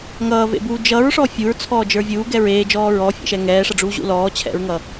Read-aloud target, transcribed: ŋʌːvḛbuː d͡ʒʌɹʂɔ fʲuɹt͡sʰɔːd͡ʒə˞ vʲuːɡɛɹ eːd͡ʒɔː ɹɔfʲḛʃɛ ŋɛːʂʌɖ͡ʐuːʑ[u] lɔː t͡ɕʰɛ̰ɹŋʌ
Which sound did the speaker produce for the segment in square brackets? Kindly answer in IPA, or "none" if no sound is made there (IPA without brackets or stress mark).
ṵ